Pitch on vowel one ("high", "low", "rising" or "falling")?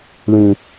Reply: low